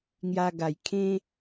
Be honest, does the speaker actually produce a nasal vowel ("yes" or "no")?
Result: yes